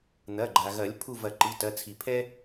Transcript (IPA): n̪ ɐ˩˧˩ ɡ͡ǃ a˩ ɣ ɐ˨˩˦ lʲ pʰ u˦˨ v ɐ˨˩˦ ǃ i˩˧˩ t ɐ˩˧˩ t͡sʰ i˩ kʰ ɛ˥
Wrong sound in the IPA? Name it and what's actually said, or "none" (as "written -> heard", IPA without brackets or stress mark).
kʰ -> pʰ